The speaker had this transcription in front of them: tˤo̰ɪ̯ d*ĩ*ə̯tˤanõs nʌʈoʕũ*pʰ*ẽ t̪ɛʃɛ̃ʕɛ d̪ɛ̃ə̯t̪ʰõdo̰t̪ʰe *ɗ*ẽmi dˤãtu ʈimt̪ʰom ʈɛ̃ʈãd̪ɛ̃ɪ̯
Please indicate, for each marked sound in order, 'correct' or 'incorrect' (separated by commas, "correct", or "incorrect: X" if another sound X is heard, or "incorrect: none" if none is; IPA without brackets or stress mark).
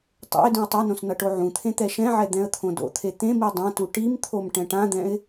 correct, incorrect: t̪ʰ, incorrect: t̪